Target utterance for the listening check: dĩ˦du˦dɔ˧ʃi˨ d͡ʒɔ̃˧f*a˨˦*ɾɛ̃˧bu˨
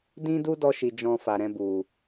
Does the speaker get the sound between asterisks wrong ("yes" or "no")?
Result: yes